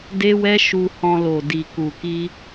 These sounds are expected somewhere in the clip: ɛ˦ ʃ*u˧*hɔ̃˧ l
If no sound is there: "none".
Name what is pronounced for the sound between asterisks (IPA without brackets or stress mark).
u˧